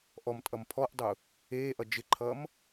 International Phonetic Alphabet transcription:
ʔɔmtʼʌm pʰɔʔdˤu | eːʔʌ d͡ʒɪǃʰʌːm

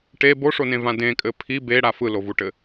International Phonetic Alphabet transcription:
ʈe boʂonẽvã dẽkʼɘ pʰi beɽa fɯlovuʈɘ

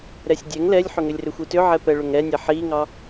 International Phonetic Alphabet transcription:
ɾɛsʲdʲɛŋ lɛlʲħʏŋʏlʲrʏ xʷitʏʕɛpɛ ɭʏŋɾɛnʲɛ ħiŋɑ

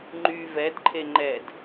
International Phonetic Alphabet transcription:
ŋ͡ǃy vɛdǃʰe ŋ͡ǃɛd

